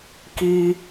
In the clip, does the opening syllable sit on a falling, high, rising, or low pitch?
high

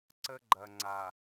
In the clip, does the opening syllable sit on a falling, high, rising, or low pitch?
high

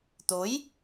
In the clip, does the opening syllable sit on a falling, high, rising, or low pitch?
rising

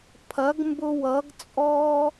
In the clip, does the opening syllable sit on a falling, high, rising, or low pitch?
rising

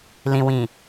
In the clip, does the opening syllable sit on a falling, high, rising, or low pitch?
low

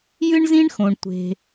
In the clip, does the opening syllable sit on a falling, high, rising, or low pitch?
high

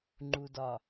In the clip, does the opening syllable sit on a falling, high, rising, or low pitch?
low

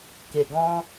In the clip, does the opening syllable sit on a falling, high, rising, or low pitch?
low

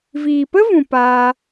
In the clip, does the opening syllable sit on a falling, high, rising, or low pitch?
low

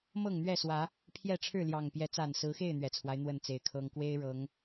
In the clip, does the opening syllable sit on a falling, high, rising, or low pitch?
falling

